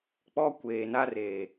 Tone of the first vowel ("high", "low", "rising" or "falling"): high